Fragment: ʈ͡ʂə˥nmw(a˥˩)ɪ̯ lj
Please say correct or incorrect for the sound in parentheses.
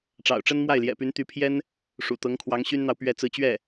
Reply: correct